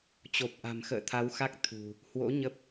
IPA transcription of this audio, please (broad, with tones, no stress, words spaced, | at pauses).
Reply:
t͡ɕo˨˩p̚ʔa̤˨˩m xə̰ː˧˨t̪ʰa˨˦wxa˦˥k̚ t̪ʰṳ˨˩ | hwo̰˧˥ ɲə˦˥p̚